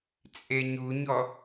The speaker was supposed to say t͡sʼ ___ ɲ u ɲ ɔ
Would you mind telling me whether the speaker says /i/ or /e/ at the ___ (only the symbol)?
e